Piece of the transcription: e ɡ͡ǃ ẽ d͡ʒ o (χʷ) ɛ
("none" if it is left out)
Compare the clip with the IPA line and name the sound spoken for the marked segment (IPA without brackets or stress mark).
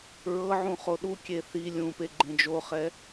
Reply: χ